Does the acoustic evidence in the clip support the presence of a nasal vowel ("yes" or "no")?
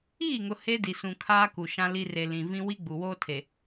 yes